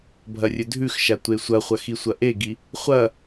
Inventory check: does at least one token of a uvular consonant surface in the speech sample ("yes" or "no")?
yes